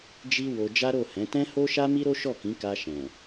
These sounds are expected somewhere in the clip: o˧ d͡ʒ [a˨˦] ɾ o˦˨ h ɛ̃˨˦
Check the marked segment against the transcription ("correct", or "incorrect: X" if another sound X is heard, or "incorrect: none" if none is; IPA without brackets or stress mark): incorrect: a˦